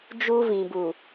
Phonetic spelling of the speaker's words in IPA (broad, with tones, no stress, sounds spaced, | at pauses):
d͡ʒ u˦ v ĩ˨ b u˨